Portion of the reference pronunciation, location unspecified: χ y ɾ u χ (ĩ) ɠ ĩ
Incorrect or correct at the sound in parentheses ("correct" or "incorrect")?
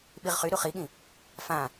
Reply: incorrect